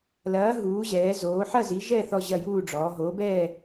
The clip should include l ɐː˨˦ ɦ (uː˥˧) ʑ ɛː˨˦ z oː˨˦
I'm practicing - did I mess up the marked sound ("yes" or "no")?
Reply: yes